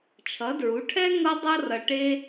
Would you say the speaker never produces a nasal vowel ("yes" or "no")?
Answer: yes